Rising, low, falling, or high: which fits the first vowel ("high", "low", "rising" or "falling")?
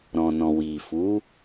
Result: low